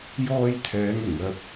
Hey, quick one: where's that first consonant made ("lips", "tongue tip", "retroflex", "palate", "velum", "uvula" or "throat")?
palate